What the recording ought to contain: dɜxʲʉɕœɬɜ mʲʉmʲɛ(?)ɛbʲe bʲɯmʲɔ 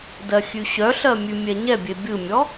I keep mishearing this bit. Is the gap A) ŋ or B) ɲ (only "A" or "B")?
B